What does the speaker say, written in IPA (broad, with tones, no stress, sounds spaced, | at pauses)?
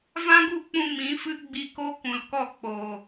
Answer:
v ã˦ ɡ u˦˨ k͡p ũ˧ m ĩ˨˦ f ɨ˦ ɡ͡b iː˧ k o˦ k ũ˨ l k ɔ˦˨ k͡p oː˨